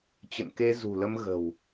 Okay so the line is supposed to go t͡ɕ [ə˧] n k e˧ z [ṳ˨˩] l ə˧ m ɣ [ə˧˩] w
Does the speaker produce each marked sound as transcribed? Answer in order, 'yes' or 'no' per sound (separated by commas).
no, yes, no